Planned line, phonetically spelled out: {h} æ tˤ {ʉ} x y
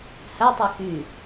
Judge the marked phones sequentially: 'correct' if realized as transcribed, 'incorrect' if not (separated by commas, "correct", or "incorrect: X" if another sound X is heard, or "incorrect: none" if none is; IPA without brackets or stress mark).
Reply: correct, correct